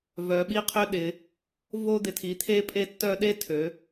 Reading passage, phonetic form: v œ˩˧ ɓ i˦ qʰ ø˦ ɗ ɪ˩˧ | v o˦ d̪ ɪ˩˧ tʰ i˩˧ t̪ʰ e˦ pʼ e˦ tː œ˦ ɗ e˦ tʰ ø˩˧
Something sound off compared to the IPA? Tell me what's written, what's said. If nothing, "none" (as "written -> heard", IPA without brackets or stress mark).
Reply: none